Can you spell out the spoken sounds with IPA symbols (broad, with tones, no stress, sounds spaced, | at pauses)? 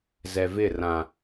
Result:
z ɛ˨ v ɪ˦˨ r ã˨